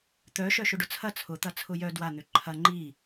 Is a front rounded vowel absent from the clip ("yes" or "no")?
no